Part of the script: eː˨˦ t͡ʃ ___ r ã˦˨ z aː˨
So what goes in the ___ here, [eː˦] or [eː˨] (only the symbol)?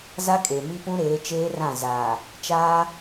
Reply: eː˦